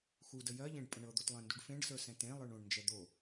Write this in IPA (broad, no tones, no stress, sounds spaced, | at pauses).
x u d ə j ɜ ʎ ẽ ɖ pʼ ə̃ ɳ ɤ d̪ o t lˠ ẽ n d u ɖ f ẽ ɖ s ə˞ s ɛ̃ t ẽ lˠ ə˞ ɳ õ ɳ n d͡ʒ ɛ d̪ o